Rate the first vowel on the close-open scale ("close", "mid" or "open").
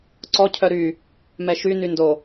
mid